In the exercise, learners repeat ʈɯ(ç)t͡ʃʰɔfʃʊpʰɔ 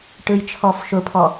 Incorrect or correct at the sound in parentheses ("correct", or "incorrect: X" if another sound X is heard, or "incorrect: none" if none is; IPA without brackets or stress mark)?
incorrect: j